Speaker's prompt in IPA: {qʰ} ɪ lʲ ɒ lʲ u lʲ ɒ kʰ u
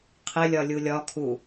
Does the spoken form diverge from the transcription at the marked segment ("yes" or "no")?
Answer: no